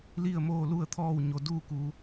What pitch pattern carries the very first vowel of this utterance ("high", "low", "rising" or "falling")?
falling